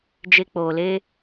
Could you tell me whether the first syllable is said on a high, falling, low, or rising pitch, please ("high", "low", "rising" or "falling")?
high